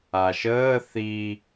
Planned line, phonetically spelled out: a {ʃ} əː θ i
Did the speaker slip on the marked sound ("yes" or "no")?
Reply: no